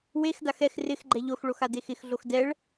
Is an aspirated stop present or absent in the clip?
absent